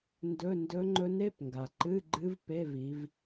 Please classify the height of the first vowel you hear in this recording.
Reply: mid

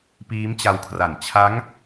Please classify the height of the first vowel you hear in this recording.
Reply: high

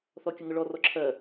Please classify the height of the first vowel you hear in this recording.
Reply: mid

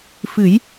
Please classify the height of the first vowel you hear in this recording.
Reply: high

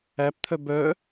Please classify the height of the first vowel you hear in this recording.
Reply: low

